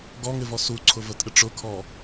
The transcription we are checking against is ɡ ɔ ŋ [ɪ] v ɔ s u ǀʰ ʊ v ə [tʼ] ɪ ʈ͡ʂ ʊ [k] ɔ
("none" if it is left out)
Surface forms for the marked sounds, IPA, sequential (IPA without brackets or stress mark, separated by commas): ɪ, tʼ, kʰ